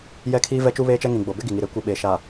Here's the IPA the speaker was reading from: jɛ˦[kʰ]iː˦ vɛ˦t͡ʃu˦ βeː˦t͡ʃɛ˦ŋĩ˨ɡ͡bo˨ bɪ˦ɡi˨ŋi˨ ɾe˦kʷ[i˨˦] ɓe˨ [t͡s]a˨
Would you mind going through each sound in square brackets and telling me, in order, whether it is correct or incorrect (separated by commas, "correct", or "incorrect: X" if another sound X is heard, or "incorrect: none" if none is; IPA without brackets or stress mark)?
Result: correct, incorrect: i˨, incorrect: ʃ